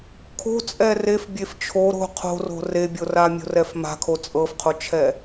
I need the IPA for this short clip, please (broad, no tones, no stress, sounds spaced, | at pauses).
kʰ o̤ t͡sʼ ɛ r e f bʲ e f t͡ʃʰ o ɾ o̤ qʰ o̤ r o̤ r e bʲ o r a mʲ o̤ r ɛ f m a̤ kʰ o t͡sʼ ɤ f qʰ o t͡ʃʰ ɛ